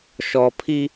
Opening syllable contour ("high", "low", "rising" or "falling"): high